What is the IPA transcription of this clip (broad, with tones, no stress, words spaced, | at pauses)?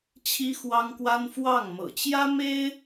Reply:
t͡ɕʰi˥xwɑ˥ŋkwa˥n fwɑ˥˩ŋ mɤ̰˨˩t͡ɕjä˥me˥ɪ̯